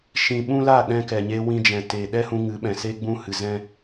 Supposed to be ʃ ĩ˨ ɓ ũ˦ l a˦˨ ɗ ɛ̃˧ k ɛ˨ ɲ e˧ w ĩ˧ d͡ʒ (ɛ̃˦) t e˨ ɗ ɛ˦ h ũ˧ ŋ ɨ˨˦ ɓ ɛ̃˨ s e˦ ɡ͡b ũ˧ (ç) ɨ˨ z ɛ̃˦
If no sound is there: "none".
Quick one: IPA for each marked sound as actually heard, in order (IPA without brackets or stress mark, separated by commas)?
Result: ɛ̃˨, h